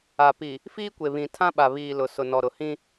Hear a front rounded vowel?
no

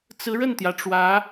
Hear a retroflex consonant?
yes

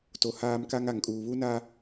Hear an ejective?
yes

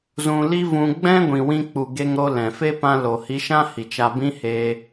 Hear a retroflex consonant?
no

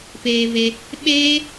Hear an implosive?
yes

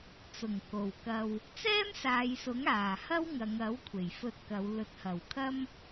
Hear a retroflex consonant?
no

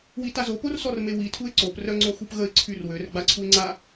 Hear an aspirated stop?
yes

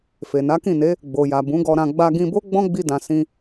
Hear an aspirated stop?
no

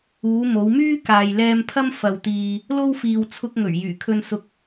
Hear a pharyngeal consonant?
no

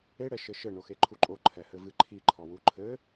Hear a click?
yes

